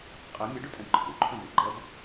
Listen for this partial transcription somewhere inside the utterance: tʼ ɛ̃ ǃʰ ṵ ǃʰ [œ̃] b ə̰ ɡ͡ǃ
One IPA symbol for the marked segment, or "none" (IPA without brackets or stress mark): œ̃